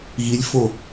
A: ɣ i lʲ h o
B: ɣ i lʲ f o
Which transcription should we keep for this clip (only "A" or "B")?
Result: B